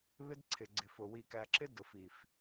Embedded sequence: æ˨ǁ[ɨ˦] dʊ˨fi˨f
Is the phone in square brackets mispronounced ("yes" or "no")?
yes